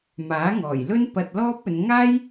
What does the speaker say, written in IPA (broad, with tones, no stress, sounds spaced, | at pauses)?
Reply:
m aː˨˥ ŋ ɔː˨˩ j l ɵ˥ n p ɐ˧ t̚ l ɔː˥ p̚ ɵ˨˧ n ŋ aː˥ j